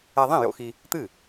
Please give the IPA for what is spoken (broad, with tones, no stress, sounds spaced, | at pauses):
ɛ˧ ðˤ ĩ˥˩ j o̰˧ x i˧ | t̪ ɨ˥˩